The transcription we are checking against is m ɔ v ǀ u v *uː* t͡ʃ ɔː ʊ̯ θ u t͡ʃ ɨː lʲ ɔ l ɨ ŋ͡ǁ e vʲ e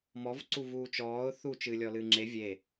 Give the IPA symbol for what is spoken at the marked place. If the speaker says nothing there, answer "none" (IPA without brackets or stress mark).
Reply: uː